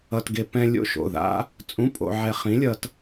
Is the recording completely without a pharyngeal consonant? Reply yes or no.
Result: no